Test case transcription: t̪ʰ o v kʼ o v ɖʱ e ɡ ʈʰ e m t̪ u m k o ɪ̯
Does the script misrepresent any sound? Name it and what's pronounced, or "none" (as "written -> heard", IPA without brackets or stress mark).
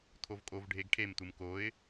none